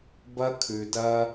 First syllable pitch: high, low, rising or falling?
high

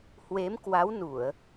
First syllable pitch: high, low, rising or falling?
rising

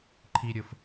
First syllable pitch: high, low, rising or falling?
high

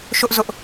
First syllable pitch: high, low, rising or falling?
high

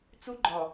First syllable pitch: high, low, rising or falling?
high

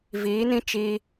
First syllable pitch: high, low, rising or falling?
rising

